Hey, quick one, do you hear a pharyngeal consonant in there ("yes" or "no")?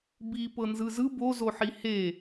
yes